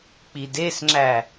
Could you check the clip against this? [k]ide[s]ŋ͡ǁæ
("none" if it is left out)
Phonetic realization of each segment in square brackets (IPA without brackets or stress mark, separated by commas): k͡p, s